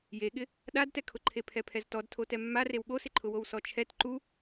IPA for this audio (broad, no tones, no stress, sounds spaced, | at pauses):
j e ɠ ɪ | ɗ a d t ɛ kʰ ʊ ǃʰ e pʰ ɛ pʰ ɛ z t ɔ d tʰ o t ɛ mː a r e w ɠ o s ɪ ǃʰ ʊ w o w s ɔ t͡ʃʰ ɛ t ǃ u